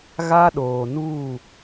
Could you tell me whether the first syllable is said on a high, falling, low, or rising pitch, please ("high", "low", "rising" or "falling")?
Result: high